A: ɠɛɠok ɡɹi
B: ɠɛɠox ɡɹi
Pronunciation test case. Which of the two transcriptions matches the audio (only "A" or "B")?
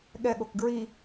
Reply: A